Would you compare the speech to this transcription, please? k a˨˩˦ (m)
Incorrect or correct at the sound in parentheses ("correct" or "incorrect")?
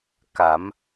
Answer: correct